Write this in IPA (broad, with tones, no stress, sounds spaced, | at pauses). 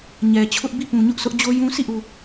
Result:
ɲ ɛ˨ t͡ɕʰ ʊ˦ ʔ b i˦˨ p ũ˨ ɲ ʊ˦ ʔ s ʊ˦ ʔ d͡ʑ o˦ j ũ˦ s i˦˨ ʔ u˨